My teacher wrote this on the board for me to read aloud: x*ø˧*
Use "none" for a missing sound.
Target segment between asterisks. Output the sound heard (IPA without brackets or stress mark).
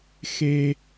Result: e˧